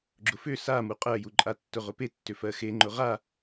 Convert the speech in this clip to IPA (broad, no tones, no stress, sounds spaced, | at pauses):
ɡ͡ǁ ʊ f ʏ s a m u qʼ ɜ j u ǃʼ a tː ʊ ʁ ʊ p e tː ʏ f ɜ x e ŋ͡ǃ ʊ ʁ a